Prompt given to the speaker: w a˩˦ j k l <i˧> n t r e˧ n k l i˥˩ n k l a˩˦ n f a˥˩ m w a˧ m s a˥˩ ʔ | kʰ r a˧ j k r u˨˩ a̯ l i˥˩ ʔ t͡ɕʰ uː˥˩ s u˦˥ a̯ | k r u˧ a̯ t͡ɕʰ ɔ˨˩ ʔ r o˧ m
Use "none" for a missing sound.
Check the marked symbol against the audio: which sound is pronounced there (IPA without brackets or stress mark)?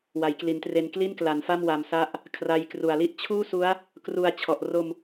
i˩˦